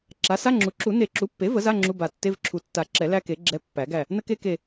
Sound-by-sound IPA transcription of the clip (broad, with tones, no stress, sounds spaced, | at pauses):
ǁ a˩˥ s a˧˥˧ ŋ͡ǁ u˩˥ ǁ u˨˩˦ n e˨˩˦ ǁ u˩˥ pː e˩˥ v ə˩˥ z a˧˥˧ ŋ͡ǁ u˧˥˧ b a˨˩˦ tː e˧˥˧ v ǁʰ u˨˩ tː a˨˩˦ ǁ ɛ˨˩˦ l æ˥ k e˩˥ ɡ͡ǁ ɛ˧˥˧ pː æ˨˩˦ ɡ æ˦˨ | n ə˥ k e˥ k e˦˨